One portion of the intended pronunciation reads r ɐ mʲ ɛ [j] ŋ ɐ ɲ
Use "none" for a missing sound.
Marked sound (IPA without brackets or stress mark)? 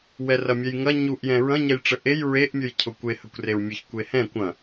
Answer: j